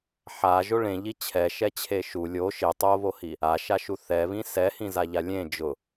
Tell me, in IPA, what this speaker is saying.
ħ a ʒ o ɭ ẽ ʎ i t͡ɕʰ ɛ ʃ ɛ t͡ɕʰ e ʃ u lʲ o ʃ ɪ tˤ o β o h i | a ʃ a ʃ u θ ɛ β ĩ s ɛ h ĩ z a ʎ a lʲ ẽ d͡ʒ ʊ

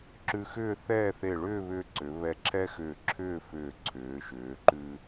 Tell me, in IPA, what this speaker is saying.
ǁ ʉ˧ x ʏː˥˧ θ ɛː˥˧ θ e˧˩ ɭ ʏː˥˧ β ʏː˧ ǀ ʏ˩˧ β ɛ˧ ǁʰ ɛ˥ x ʏː˧˩ ǁʰ ʏː˥˧ f ʏː˧˩ ǀʰ ʏː˩˧ ʃ ʏː˩˧ ǃ ʉ˧

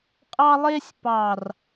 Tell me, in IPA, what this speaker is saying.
qʼ ɑ˦ lˠ e˦ sʲ p ɑ˨ r

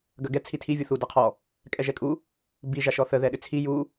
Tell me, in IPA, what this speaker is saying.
ɡ ɐ ɡ ɛ t͡sʰ i tʰ i vʲ u θ u d a qʰ ɔ | kʼ ɛ ʒ ɛ kʼ u | b i ʒ a ʃ ɔ θ ə ð ɛ ɗ ʏ t͡sʰ i j u

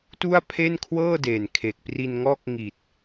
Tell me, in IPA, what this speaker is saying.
t u˥˩ a̯ pʰ e˥˩ n kʰ w ɤː˥˩ d eː˨˩ n kʰ e˨˩ k̚ p r i˧ n ŋ ɔː˥˩ k̚ ŋ i˨˩ t̚

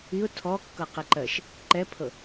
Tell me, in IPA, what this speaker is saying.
i ʊ̯ tʰ ɔ kː ɤ q i ǃ ɜ ʃ | ǃ ɛ pʰ ɤ

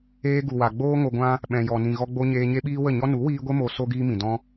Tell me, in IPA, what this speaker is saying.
eː˧ ɡ u˨ w a˨ ɡ͡b oː˦ ŋ o˧ ɡʷ ã˦ | ɓ ɛ̃˨ j ɔ˨ n ĩ˨ ɣ ɔ˧ ɡ͡b o˧ ɲ eː˧ ɲ e˦ ɓ iː˦ w ə˦˨ ɲ ɔ˦ n u˨˦ w iː˧ ɡʷ e˦ m o˧ s o˦ ɡ iː˦ m ĩ˨ d ɔ̃˧

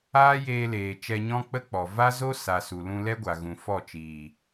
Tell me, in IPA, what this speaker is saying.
aː˦ j eː˧ l eː˨ t͡ʃ ɛ˧ ɲ ɔ̃˦ k͡p ə˦ k͡p ɔ˨ v a˦ z o˦ s a˨ s u˨ l ũ˧ l ɛ˦ ɡʷ a˨ ɣ ũ˨ f ɔ˦˨ t͡ʃ iː˨

